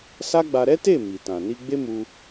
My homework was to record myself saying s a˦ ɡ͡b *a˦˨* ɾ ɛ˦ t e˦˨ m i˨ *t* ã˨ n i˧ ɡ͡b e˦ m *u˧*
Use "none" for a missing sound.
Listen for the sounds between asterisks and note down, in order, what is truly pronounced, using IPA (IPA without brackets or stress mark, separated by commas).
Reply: a˧, t, u˧